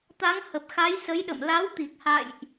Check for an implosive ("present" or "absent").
present